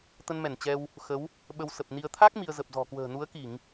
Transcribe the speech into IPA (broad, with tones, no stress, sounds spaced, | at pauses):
t̪ ə˧ n m ɛ˧˩ n t͡ɕ ɛ˧ w | x ə˨˦ w | ɓ ə˧ w s ə˨˩ p̚ n i˧ ə̯ t̪ʰ a˦˥ k̚ m i˧ ə̯ z ə˨˩ p̚ z ɔ̤˨˩ k w ə̤ː˨˩ n u˨˦ ə̯ k i˧˩˨ ŋ